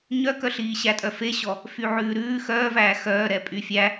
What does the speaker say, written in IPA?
ɲ œ k œ ɬ iː ɕ æ tʼ œ f e ɕ ɔ | f y ʕ ʉː ɾ ʉː x œː v æː x œː ɾ ɛ pʼ y fʲ æ

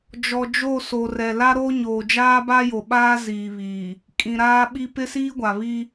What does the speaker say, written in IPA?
d͡ʒ ɔ˨ d͡ʒ o˦˨ s o˨ r ɛ˨ l a˦ ɾ o˦ ɲ oː˨ d͡ʒ aː˦ b a˦ j o˨ ɓ aː˦ z iː˨ β iː˨ | kʼ ĩ˨ ɾ aː˦ ɓ i˦ p ɪ˦ s iː˦ ɡʷ a˨ β i˦

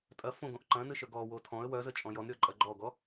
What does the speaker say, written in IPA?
tʼ ɐ f õ ɡ õ ʔ ǃ ɐ̃ n ɨ ʃ œ ɡ ɔ w o tʰ ɔ̃ ə̯ w œ z ə t͡ʃʼ ɔ̃ j ɔ n ɾʲ ɔ ǃʼ ɐ ɡ͡ǃ ɔ ɡ ɔ

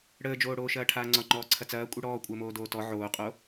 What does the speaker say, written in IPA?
ɽ əː d͡ʒ oː ɽ oː ʃ ɐː ʈʰ aː ŋ͡ǀ ɒ ŋ͡ǃ ɔː ǀʰ ɐ t͡s ɐː kʷʼ i ɽ ɔː kʷʼ əː m oː d oː t ɔ ʕ oː qʼ o

